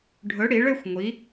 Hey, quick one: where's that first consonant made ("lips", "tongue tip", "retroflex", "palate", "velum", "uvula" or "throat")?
retroflex